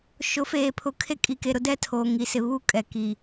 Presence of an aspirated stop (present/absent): present